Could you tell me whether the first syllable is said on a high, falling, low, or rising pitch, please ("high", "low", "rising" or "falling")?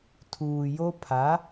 low